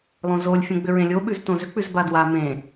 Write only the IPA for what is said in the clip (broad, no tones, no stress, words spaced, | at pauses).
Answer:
lˠõzolʲ fʲõɡ͡bʏɹẽlʲo ɓʉztõzʏ k͡pʉzbadwa mẽ